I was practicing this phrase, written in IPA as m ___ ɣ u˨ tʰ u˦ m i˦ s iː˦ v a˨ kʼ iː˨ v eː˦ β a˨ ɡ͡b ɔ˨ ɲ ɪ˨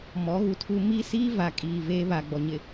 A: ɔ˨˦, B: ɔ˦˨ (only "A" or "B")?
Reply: A